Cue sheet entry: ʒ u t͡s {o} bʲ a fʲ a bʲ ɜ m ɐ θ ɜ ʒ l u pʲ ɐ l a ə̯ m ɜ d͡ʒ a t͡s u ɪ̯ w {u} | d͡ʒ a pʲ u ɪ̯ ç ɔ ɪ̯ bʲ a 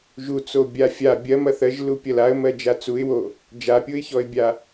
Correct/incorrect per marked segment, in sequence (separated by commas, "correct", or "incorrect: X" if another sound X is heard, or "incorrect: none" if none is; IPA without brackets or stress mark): correct, incorrect: o